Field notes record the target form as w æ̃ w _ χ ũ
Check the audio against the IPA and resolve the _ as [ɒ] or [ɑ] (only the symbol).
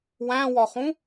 ɒ